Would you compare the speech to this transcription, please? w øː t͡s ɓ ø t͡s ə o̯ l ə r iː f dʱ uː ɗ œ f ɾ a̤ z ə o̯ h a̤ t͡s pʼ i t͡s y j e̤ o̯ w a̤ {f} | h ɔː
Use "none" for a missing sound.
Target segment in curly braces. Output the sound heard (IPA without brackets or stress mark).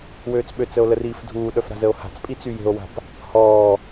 p